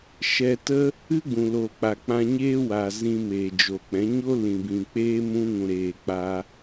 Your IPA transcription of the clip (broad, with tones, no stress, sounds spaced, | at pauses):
ʃ ɛ˧ t ə˦ | ɨ˦ ɡ͡b ũ˨ l o˨ k͡p a˨ k͡p ã˧ ɲ eː˦ w a˨ z ĩ˧ m eː˨ d͡ʒ o˨ k͡p ɛ̃˨˦ ɲ o˦ l ĩ˨ b ĩ˨ k͡p eː˦ m ũ˧ ŋ ũ˨ ɾ eː˨ k͡p a˦